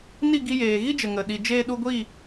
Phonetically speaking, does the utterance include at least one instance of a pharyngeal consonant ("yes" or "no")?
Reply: no